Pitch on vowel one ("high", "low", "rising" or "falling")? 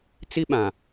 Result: high